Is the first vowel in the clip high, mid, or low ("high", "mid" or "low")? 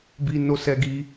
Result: high